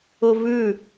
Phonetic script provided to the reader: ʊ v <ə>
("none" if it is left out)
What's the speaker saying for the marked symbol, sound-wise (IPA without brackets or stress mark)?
ʉ